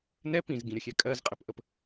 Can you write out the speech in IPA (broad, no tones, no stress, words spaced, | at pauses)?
nɛ pĩzɡĩɾʲəxʲɛ kʼɜzqʼɛpʔəp